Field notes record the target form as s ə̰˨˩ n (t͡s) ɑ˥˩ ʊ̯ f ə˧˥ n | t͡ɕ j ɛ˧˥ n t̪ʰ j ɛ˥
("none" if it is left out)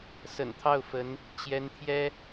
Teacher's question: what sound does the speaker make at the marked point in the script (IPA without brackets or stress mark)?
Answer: t̪ʰ